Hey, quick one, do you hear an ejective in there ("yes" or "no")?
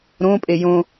yes